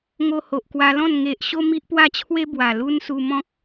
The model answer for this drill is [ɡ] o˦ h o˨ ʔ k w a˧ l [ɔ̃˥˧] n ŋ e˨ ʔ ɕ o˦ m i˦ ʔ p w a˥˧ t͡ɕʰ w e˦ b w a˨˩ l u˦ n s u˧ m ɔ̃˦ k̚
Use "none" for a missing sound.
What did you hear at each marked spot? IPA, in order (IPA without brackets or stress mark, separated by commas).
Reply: ŋ, ɔ̃˥˧